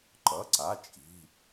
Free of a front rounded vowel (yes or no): yes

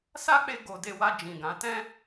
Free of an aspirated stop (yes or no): yes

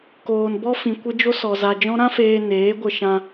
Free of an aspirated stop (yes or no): yes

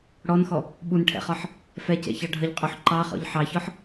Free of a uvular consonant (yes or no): no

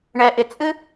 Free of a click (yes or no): yes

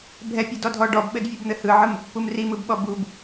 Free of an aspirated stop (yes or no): yes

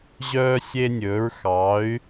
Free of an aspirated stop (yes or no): yes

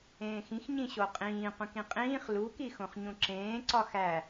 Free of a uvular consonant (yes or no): no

